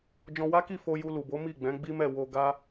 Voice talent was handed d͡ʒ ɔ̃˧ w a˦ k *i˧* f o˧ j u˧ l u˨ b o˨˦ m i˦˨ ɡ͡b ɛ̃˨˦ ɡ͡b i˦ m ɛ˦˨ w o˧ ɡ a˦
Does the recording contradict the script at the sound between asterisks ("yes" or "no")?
yes